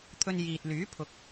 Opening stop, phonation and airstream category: aspirated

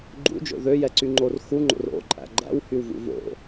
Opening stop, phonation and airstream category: click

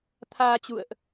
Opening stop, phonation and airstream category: aspirated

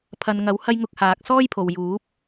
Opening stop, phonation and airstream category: aspirated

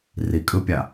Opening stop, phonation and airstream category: ejective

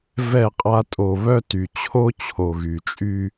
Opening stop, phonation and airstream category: ejective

